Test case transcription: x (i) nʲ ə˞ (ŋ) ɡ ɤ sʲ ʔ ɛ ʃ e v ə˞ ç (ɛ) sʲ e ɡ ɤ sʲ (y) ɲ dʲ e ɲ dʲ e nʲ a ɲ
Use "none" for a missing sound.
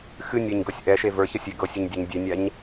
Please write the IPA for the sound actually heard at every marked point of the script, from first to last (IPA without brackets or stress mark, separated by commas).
ɨ, ɲ, ə, ɨ